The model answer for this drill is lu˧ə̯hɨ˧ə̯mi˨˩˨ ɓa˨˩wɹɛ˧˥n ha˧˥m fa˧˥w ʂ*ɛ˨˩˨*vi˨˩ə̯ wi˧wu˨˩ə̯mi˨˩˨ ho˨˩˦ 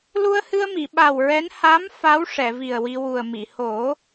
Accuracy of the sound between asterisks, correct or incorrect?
correct